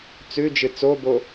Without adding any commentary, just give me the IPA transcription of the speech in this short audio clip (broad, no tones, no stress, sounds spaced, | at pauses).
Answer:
t͡s ʉ d͡ʒ ɨ t͡s o b o